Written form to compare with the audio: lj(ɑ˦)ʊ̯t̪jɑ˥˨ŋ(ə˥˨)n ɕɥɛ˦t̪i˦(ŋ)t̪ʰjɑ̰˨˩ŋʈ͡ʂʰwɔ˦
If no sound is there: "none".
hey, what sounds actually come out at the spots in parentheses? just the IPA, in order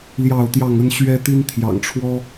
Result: ɑ˥˨, ə˦, n

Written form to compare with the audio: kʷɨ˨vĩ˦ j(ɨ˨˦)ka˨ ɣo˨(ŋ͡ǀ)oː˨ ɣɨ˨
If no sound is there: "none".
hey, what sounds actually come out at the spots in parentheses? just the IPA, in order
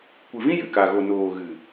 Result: ɨ˨, n

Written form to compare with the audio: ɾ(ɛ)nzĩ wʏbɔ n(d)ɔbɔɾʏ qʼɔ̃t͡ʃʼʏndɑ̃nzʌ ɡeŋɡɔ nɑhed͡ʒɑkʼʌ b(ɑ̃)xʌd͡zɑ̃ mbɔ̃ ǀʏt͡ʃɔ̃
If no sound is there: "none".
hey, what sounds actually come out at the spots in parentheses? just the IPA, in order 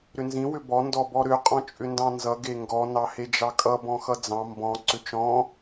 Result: ʏ, d, ɔ̃

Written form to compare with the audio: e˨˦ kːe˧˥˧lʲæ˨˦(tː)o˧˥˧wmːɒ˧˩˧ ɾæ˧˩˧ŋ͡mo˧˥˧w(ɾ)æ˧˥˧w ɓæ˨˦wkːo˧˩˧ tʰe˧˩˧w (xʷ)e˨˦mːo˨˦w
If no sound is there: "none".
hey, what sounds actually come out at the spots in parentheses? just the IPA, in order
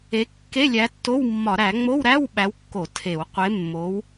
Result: tː, ɾ, qʷ

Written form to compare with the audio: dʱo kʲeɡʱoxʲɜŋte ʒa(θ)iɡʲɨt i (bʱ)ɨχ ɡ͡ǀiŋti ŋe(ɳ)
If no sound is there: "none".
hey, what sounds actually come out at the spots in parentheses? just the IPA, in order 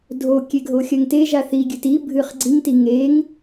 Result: θ, bʱ, ŋ

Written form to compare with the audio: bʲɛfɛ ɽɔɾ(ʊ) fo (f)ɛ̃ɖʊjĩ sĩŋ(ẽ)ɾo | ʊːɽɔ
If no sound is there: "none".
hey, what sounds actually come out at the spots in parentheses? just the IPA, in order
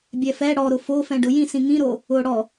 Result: ʊ, f, ĩ

